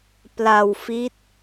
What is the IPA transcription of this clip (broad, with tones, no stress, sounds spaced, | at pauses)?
p l a˧ w f i˦˥ t̚